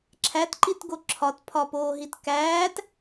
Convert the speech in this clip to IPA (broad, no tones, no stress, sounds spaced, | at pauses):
ǁʰ æ t ǃ i t ɡ o ǁʰ ɒ t pʰ ɒ p oː ɦ i t k æː t